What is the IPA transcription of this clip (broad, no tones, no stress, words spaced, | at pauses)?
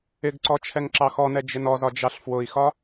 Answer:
ɪɡǀɔ t͡ʃʰɛŋǁɑxɔnɛ d͡ʒɪnɔzɒ d͡ʒɑɬfwʊi̯xɒ